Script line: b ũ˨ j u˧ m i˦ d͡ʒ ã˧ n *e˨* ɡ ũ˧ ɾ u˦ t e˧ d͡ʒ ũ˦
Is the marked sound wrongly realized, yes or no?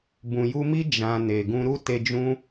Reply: no